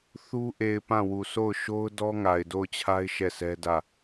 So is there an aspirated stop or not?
yes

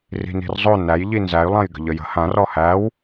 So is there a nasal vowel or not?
yes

